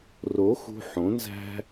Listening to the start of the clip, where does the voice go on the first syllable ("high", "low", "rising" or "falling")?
rising